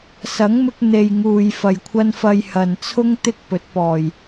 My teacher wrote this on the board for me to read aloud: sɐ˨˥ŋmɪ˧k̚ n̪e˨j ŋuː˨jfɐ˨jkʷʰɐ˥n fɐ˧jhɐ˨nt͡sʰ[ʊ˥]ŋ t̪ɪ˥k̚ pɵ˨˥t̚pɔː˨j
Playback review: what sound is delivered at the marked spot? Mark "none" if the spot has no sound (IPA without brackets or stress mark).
ʊ˥